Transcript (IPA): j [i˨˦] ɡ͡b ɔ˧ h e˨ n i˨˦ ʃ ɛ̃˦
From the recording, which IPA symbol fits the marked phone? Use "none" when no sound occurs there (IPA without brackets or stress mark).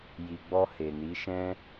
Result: i˨